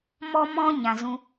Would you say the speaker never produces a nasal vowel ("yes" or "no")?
no